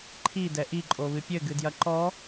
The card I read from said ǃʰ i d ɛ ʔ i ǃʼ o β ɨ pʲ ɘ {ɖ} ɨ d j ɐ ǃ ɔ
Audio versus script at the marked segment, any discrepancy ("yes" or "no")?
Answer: yes